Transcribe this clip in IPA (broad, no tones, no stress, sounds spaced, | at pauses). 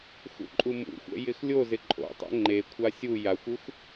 x ṵ ǃʼ u m ṵ xʷ ɛ̰ j ɪ x lʲ o z ɪ ǃʼ o̰ tˤ ɛ̰ ŋ͡ǃ e kʷʰ a sʲ u j a xʷ u x